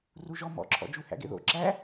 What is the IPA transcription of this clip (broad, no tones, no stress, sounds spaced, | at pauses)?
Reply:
r u ʒ ɔ m ɔ̰ ǁʰ ɔ̰ d͡ʒ u h æ̰ ɡ ḛ ð o̰ ǁ æ